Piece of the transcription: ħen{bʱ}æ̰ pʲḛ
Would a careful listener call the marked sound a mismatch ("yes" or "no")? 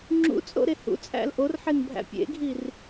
no